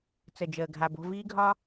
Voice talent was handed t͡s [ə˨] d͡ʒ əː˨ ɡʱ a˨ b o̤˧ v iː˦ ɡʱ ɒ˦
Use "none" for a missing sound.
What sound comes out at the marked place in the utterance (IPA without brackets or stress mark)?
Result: ə˨